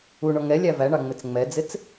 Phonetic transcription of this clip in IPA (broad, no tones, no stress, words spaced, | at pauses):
uɳɔ ŋɛlʲæ væɳɑŋ͡mɪt͡s ŋ͡mɛd͡zɪt͡s